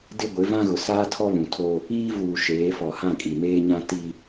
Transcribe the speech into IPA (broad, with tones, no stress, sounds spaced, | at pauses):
d ɪ˦ ɡʷ ɪ˨˦ v ã˦ ɣ ʊ˨ s aː˦ tʰ ɔ˦ β ũ˨ tʰ oː˦ | iː˦ v uː˨ ʃ eː˨˦ f ɔ˨ h ã˦˨ kʼ i˨ m eː˦ ɲ ã˦ t iː˦